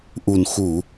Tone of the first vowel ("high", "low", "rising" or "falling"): low